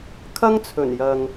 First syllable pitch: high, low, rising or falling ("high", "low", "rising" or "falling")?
high